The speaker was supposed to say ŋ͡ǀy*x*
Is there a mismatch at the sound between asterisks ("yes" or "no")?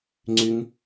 yes